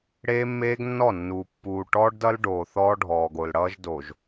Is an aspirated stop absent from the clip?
yes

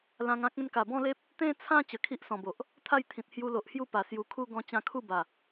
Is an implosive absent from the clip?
yes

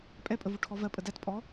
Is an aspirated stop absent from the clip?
no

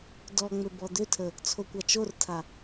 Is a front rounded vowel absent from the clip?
no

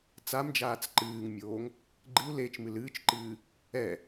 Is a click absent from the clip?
no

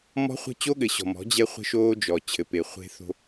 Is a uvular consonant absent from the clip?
no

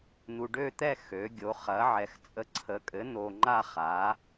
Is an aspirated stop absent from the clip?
no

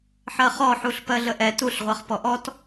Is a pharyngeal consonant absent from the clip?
no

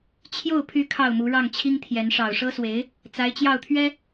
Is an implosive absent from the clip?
yes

